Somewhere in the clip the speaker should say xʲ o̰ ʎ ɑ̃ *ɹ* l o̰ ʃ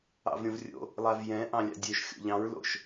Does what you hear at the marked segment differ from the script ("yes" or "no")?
no